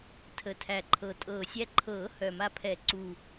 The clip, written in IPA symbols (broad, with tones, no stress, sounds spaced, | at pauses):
tʰ ə˨˩ tʰ æ˨˩ ǃʰ ɤ˨˩ tʼ ɤː˨˩ sʲ æ˧ ǃʰ ɤː˨˩˦ h œ˨˩ m a˧ pʰ ɛ˨˩˦ ǀ u˨˩